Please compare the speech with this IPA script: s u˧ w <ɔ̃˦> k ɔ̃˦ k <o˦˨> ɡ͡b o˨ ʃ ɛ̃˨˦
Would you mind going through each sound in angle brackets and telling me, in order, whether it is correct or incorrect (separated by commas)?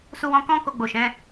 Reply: incorrect, incorrect